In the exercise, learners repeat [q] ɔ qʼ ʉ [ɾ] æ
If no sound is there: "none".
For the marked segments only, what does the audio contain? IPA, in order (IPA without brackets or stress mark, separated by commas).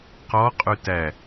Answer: q, t